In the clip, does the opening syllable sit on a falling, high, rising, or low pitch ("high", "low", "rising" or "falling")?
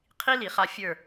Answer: high